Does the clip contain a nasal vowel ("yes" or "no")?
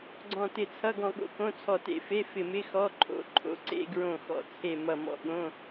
yes